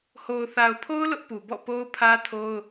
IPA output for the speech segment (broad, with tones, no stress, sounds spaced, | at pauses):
h o˨ ʊ̯ θ a˨ ʊ̯ pʰ o˦ ʊ̯ l ʊ˦ ʔ p u˨ b ɔ̰˦˨ p o˦ ʊ̯ pʰ ä˦ tʰ o˦ ʊ̯